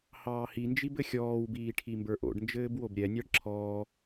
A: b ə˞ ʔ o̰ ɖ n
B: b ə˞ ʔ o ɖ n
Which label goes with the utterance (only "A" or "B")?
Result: A